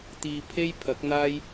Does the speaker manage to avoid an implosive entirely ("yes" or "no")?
yes